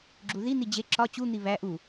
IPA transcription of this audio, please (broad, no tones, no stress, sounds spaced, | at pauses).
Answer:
ɡ͡ǁ u ð i n̪ i d͡ʑ e ǁ ɒ t͡ɕ u n̪ i β æ ʔ u